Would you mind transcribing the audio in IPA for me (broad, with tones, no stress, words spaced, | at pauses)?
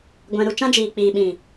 ɡʷɛ̃˧ ɾu˧t͡ʃã˦ d͡ʒiː˨k͡piː˨ɓĩ˨